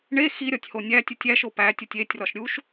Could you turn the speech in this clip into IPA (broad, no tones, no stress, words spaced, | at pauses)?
ɳe xiɾʲɒtʲho nʲætʲutʲ æʃo pætʲotʲ etʲrɒʃ ɾʲuʃ